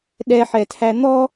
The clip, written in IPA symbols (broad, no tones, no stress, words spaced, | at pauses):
ɗɛħɛtʰæ n̪ɔ